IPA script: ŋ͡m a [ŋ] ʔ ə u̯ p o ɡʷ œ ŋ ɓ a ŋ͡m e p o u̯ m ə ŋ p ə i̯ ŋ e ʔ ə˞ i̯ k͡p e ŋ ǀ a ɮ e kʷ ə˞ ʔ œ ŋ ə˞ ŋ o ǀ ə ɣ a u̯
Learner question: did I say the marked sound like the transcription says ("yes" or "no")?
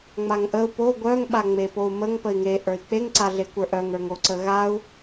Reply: yes